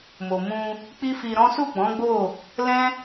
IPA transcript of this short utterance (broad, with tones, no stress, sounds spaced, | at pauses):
m o˨ m ũ˧ | k͡p i˦ f i˧ ɾ ɔ̃˦ s u˦˨ ɡ͡b ɔ̃˨˦ ɡ͡b o˦˨ | l ɛ̃˦